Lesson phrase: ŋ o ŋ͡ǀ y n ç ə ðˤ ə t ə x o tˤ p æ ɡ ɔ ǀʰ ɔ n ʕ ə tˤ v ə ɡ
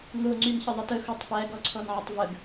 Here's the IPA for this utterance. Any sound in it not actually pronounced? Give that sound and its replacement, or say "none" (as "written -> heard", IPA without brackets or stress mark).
none